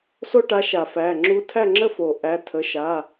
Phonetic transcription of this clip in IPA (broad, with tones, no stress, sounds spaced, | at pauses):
s o˥ ʈ a˧˥ ʃ a˨˩˦ f æ˩˧˩ ŋ͡ǁ u˧˥ tʰ æ˥˨ ŋ͡ǁ ə˥˨ f o˨˩˦ ʔ æ˩˧˩ tʰ ə˩˧˩ ʃ a˩˧˩